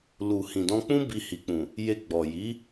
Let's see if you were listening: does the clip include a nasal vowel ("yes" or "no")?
yes